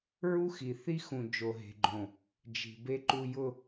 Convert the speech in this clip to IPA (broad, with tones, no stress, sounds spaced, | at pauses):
ɹ u˦ x i˨ θ i˦ x ũ˨ d͡ʒ o˨ ɦ e̤˨ ɡ͡ǃ õ˨ | d͡ʒ i̤˨ b e˦ ǃ u˨ j ʊ˨